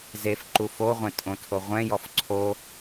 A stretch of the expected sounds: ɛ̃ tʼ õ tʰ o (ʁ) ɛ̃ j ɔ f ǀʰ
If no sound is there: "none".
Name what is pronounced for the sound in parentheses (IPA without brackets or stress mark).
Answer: ʁʷ